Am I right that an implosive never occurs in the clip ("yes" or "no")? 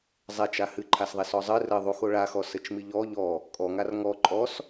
yes